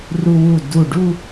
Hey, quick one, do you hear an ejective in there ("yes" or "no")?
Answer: no